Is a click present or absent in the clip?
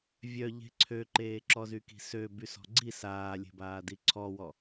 present